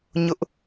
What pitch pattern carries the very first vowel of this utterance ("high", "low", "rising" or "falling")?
high